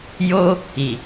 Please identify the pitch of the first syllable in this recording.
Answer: high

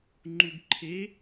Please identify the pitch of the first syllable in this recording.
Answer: low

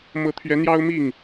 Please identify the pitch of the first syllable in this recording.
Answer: rising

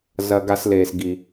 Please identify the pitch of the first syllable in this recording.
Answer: low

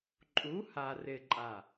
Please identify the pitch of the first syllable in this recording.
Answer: rising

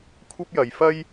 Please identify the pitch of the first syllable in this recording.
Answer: high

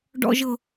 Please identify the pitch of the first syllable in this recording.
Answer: low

